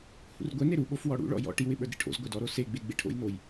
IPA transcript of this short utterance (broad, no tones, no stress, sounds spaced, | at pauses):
h ṵ r ɡʷ ɛ n e ɾ u ɓ o f w ɔ ɽ ṵ ɭ ɔ̰ j ɔ̰ ʈ i w ɪ ɓ ə˞ d ɾ ḭ ʈʰ o̰ z ɡʷ æ d ɔ ɾ o s e ɡ͡b e ɡ͡b e ʈʰ o̰ j n o j